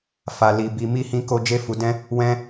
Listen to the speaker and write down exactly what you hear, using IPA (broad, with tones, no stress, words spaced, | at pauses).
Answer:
fa˧li˧bi˧ mi˦hĩ˦ko˦ d͡ʒe˦fu˧dɛ̃˦ | wɛ̃˦